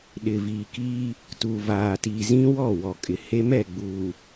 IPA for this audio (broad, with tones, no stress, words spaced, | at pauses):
ɗɪ˨viː˨kiː˦ | tu˨vaː˨tiː˨ zĩ˦wɔ˦˨ wɔ˨kʼɪ˨ he˦mɛ˦˨ ɡ͡buː˨